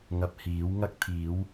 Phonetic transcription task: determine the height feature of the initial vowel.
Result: low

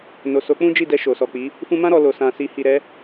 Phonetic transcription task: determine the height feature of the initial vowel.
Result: mid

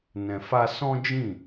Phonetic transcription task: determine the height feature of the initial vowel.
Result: mid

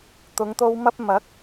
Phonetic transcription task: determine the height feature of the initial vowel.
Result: high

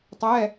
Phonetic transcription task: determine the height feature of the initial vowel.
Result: mid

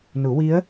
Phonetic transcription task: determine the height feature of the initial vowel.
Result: high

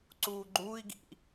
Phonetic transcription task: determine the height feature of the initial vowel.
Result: high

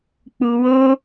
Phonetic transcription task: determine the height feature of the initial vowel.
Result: high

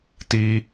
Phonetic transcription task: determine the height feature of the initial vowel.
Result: high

